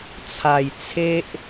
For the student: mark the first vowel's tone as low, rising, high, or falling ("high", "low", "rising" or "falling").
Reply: low